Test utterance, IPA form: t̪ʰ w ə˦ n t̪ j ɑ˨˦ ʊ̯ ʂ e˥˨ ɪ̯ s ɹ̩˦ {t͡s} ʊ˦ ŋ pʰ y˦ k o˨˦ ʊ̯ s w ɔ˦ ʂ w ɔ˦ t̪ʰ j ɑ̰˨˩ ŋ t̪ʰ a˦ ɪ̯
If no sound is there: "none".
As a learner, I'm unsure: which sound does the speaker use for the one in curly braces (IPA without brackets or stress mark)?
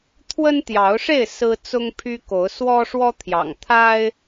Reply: t͡s